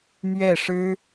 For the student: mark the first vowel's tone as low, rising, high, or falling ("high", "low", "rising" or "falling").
falling